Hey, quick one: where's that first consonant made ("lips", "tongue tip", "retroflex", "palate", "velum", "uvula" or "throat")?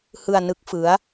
throat